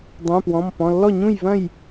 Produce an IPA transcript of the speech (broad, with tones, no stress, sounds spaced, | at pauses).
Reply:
dˤ ũ˩˧˩ p w ɔ̃˩˧˩ m p ɔ̃˩˧˩ lː ɔ˥˩ ɲ ũ˥˩ j v ɐ̃˥˩ j